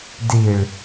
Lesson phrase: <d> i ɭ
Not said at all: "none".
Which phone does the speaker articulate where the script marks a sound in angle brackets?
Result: d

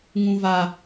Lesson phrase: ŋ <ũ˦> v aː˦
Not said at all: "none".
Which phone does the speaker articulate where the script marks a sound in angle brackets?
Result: ũ˦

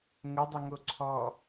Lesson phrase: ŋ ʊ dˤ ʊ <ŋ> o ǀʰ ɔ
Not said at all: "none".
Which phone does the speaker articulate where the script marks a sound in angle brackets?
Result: ŋ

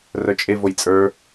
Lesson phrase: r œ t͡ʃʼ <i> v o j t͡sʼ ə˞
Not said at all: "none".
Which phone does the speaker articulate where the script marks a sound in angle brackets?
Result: e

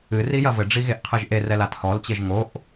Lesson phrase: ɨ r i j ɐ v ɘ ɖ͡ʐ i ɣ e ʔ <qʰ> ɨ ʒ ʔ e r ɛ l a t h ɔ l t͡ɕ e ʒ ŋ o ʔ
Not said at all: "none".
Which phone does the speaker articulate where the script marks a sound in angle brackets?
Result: qʰ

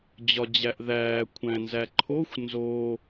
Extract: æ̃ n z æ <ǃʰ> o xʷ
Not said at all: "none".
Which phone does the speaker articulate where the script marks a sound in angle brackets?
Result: ǃʰ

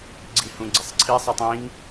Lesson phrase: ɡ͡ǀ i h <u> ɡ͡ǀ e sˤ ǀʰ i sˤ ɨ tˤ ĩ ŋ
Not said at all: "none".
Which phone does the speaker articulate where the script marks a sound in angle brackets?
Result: ũ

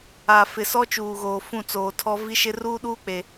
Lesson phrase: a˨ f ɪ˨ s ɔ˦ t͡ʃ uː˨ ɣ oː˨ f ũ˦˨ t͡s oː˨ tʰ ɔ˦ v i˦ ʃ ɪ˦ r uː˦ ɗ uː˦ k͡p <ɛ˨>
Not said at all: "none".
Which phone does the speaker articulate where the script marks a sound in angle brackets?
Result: e˨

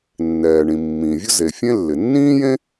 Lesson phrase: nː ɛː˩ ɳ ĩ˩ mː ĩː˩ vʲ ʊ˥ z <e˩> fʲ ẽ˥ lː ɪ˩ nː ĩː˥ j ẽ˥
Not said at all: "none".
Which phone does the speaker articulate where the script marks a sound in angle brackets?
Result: e˩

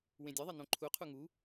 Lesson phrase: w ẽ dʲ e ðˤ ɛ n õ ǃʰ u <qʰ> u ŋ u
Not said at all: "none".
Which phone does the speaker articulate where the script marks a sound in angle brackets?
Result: qʰ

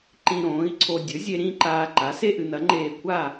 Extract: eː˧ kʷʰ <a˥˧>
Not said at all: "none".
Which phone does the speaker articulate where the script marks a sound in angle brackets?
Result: a˥˧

